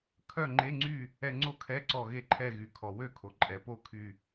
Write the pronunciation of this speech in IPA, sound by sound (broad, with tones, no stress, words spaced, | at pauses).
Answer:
kʰœ˥˨ŋ͡ǃe˧˥˧ŋ͡ǀy˥˨ | ɛ˧ŋ͡ǀo˥˨kʰɛ˧˥˧ǀɔ˧˩ ɣe˧˩ǃʰɛ˧˩ɣy˩ kʰɔ˩wø˥˨kʰo˩ ǃʼɛ˩po˥˨kʰy˧˩